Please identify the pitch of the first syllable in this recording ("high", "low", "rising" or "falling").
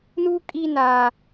high